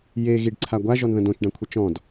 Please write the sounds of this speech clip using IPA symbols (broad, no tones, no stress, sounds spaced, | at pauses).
j e ɣ i ɖ ǀʰ a ɡʷ a ʒ ɔ n ð ə̃ d õ t͡ʃ ɖ ã kʷʰ ə t͡ʃ ɔ̃ d